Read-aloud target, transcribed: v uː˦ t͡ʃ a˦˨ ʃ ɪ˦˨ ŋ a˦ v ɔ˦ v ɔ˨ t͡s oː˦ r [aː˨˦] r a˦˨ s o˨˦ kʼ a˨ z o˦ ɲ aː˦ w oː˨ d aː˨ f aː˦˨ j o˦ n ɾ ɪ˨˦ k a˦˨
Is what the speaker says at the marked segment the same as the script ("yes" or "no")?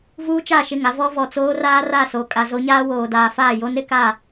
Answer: no